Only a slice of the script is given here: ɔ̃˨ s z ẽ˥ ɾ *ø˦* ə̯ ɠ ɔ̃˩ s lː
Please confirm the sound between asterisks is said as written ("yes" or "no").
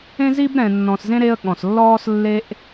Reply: no